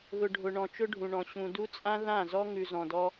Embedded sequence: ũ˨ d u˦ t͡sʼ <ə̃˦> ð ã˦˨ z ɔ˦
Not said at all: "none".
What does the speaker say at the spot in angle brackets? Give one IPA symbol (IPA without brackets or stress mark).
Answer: ã˦